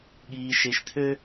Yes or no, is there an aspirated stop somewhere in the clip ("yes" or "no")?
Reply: yes